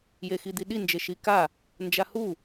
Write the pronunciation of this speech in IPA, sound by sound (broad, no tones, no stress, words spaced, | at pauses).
jexid̪iɗi nd͡ʒeʃika | nd͡ʒahu